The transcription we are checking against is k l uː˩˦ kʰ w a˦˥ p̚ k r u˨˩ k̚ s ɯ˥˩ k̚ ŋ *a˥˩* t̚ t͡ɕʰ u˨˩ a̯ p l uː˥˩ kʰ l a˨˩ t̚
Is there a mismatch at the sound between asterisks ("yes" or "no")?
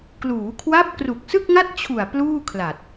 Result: no